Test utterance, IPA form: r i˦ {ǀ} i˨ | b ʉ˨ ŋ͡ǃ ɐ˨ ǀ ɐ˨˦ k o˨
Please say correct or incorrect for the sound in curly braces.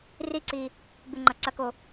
correct